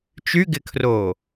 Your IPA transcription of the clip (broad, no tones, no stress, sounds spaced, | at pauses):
t͡ʃ y ɡ ɪ kʰ r oː